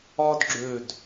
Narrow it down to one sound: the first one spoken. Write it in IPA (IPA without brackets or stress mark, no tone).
ɒ